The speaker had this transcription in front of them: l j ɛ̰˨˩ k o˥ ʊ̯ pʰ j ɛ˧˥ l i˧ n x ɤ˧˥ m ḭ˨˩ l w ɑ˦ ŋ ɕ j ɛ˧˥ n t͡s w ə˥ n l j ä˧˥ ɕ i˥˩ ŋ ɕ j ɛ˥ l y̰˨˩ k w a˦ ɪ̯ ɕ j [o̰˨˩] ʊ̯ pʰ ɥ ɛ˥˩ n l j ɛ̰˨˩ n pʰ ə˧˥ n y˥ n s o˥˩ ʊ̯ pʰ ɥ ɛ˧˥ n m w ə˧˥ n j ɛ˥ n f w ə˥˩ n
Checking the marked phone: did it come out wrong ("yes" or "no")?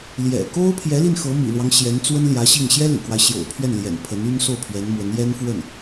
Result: no